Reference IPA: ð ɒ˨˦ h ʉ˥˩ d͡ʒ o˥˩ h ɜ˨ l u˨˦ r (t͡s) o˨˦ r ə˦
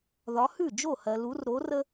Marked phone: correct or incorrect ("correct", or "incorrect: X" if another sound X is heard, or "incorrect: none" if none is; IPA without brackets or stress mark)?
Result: incorrect: ɾ